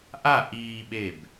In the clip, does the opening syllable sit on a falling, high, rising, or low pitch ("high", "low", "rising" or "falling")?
falling